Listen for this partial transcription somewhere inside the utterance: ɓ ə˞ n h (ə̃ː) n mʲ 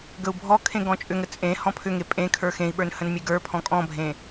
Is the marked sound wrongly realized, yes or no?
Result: yes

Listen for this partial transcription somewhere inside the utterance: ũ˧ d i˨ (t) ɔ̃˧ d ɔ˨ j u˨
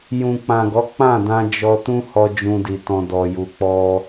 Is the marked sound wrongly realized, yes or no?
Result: no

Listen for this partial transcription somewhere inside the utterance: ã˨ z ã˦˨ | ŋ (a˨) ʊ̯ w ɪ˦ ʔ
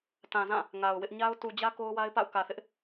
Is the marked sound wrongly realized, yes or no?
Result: no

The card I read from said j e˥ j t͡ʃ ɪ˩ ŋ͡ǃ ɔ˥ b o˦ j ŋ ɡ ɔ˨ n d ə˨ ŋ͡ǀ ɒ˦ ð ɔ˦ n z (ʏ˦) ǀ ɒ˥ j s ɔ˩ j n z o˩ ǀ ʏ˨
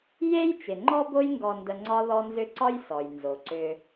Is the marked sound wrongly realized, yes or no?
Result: no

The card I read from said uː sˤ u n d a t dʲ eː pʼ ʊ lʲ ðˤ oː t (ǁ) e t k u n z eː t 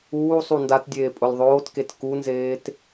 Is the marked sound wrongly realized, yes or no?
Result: yes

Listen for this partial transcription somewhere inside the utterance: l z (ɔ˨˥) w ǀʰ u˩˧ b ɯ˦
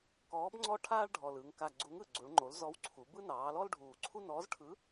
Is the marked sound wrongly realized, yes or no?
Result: no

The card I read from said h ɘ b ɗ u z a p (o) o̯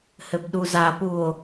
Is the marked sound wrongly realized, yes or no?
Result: yes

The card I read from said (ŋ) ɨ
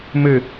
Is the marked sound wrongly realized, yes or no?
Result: yes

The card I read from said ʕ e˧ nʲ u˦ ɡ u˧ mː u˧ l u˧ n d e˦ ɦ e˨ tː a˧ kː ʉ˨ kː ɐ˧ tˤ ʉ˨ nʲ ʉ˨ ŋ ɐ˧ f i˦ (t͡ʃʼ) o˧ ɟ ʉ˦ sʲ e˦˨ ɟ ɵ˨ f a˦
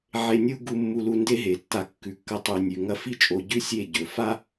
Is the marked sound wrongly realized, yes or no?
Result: no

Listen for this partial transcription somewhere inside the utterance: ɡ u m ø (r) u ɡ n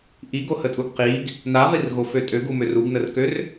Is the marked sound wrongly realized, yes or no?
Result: no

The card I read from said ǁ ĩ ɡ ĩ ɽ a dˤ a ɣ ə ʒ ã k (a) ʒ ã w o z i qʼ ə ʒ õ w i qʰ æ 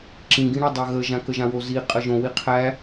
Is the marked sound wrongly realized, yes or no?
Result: yes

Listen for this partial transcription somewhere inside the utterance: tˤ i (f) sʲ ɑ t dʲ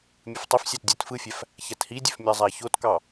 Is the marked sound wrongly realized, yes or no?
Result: no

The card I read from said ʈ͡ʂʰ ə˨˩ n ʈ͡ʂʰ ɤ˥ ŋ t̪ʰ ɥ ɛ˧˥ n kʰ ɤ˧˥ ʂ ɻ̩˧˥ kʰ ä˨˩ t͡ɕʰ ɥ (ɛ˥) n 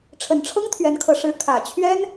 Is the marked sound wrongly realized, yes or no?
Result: no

